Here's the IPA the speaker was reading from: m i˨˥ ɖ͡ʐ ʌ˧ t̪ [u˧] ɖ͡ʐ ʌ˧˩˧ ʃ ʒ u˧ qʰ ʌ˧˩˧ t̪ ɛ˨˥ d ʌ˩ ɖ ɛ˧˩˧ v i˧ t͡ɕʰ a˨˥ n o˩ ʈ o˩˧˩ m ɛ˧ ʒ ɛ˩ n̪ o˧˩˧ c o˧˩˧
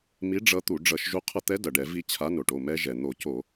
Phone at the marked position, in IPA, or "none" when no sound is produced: u˧˩˧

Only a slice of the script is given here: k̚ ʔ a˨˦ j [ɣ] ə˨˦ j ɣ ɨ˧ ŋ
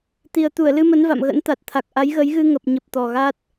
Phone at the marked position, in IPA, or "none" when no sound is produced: ɣ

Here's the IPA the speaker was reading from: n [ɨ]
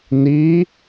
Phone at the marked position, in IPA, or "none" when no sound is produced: i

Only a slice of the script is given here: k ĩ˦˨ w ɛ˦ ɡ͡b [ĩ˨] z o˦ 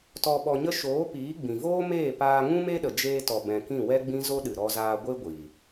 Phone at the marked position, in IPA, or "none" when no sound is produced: ĩ˦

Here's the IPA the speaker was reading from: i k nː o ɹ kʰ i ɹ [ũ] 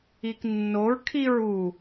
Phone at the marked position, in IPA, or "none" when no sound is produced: u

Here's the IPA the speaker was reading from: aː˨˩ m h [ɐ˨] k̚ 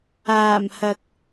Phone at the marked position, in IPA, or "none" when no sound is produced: ɐ˨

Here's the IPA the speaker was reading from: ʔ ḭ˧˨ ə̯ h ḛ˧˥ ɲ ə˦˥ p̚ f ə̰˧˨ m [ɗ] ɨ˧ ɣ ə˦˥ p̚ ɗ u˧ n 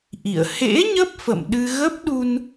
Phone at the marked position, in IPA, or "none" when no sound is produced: ɗ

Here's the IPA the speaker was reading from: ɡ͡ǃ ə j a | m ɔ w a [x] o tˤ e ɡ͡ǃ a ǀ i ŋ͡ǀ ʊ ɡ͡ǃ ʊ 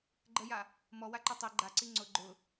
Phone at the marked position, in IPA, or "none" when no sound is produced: ǃ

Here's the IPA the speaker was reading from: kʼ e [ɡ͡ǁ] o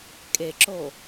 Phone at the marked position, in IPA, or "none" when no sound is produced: ǁ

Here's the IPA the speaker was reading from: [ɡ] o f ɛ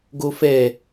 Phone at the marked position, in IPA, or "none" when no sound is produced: ɡ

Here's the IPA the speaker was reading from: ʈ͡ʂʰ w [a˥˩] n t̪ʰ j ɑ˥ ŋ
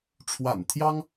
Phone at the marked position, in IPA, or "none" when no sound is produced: a̰˨˩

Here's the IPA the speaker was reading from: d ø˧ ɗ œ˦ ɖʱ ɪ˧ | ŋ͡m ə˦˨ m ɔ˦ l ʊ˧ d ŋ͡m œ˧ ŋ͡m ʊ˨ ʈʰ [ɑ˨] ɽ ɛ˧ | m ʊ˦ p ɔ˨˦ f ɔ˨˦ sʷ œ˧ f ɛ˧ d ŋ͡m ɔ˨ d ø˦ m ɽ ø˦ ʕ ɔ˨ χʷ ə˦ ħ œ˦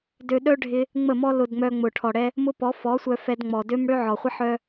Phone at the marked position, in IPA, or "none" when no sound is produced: ɔ˨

